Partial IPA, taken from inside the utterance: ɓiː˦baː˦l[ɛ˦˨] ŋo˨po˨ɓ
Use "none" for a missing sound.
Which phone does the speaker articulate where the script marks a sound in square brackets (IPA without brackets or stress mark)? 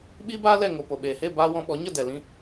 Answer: ɛ˦˨